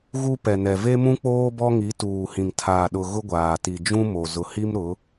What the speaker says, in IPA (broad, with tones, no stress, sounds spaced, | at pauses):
ɣ u˦ p ɛ˨ n ɛ˨ v e˦ m ũ˦ k͡p oː˦ b ɔ˦ ŋ i˨˦ t uː˨ h ĩ˨ ŋ tʰ aː˨ ɗ ʊ˨ ɣ ʊ˦ ɡʷ aː˨ t i˨ d͡ʒ ũ˦ m o˨ z ʊ˨ h i˦ m ɾ ʊ˨˦